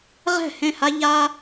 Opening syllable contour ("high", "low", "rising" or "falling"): falling